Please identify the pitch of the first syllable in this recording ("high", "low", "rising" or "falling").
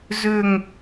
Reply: falling